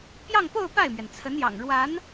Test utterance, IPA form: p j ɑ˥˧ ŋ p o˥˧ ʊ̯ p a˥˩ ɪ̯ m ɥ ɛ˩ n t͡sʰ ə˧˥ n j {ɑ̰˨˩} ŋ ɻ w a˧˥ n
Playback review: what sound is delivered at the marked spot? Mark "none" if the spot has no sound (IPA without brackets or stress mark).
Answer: ɑ̰˨˩